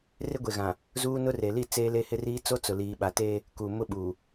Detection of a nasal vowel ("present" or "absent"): present